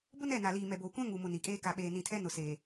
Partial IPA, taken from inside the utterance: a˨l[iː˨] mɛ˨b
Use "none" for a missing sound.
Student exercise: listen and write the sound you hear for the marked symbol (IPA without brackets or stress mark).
iː˨